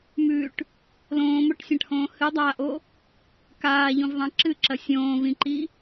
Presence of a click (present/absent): present